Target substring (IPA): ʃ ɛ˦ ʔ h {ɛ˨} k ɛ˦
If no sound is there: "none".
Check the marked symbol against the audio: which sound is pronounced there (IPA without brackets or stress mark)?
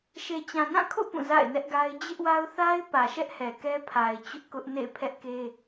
ɛ˨